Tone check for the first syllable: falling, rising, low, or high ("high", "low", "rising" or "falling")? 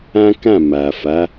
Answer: high